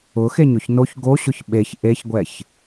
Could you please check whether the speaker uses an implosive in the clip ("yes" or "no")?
yes